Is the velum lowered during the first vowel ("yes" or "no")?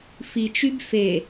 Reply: no